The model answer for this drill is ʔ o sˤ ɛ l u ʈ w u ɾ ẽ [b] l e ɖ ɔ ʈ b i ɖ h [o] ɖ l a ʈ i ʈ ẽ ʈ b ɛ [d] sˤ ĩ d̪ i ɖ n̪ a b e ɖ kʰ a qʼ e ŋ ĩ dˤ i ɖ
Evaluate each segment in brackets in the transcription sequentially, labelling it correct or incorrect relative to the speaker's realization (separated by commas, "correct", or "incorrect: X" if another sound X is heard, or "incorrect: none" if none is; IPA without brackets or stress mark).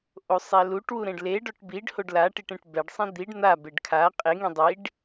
incorrect: ɖ, correct, incorrect: ɖ